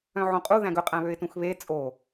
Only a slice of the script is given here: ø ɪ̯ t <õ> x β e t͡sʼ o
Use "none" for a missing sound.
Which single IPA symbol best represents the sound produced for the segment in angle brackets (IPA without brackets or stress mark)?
ũ